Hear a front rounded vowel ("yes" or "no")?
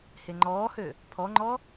yes